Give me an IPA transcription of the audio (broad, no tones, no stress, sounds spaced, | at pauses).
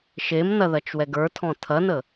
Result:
ʃ e m n ɐ ð ɐ t͡ʃ w ɛ ɡ ə˞ tʰ ɔ̃ tʰ ɐ n ə